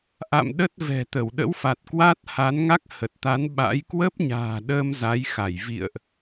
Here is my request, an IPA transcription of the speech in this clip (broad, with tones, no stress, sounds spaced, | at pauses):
ʔ a̰˧˨ m ɗ ə˦˥ t̚ v ɛ̤˨˩ t̪ ə˧˩ w ɗ ə̰˧˥ w f a˨˩ t̚ k w a˦˥ t̚ h a˨˦ n ŋ a˦˥ k̚ h ə˨˩ t̚ t̪ a˨˦ n ɓ a̰˧˥ j k w ə˦˥ p̚ ɲ a̤ː˨˩ ɗ əː˧ m z a˨˦ j x a˧˩ j v ḭ˧˨ ə̯ ʔ